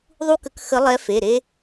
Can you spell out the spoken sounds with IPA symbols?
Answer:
ðˤ u˦ k ə˨˦ k x ə˨˦ lˠ ɛ˨˦ f e˩˧˩ ɾ e˦

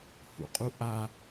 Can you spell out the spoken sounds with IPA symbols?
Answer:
h ṵ qʼ u ʔ a

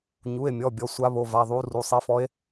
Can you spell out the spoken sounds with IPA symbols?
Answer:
ɲ u˩˧˩ e̯ mʲ ɔ˩˧˩ bʲ ɔ˩˧˩ sʷ a˧˥ β o˩˧˩ v a˩˧˩ ðˤ u˧˥ r u˩˧˩ sˤ e˧˥ f ɔ˧˥ e̯

